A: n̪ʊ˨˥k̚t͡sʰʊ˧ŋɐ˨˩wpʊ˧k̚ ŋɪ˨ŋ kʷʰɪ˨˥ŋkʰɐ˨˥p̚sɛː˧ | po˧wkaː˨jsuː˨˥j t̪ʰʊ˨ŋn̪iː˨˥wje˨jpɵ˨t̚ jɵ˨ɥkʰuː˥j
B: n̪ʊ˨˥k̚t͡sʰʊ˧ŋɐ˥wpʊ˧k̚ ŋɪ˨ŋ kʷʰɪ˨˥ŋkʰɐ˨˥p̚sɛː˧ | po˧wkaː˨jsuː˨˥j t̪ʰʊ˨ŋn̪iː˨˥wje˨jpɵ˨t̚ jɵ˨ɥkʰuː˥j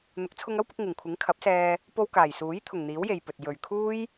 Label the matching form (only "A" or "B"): B